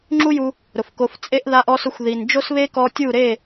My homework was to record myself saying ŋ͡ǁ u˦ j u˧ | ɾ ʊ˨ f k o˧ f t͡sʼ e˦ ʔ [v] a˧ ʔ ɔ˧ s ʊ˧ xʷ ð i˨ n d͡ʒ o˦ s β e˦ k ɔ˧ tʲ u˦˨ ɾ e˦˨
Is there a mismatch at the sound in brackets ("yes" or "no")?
yes